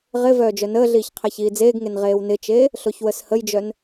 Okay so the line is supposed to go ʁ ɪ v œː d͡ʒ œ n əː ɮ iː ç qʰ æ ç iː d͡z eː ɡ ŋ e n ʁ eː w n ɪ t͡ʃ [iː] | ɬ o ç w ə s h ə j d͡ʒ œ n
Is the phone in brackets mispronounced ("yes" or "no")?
yes